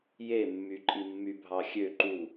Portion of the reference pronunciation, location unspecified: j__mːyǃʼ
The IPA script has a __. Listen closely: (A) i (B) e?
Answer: B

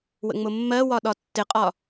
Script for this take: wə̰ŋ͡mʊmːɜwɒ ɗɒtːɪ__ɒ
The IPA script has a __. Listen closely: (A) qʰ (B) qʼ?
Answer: B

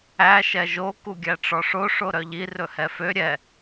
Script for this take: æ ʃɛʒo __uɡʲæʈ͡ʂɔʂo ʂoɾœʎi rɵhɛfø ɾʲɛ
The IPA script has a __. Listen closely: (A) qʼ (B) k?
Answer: B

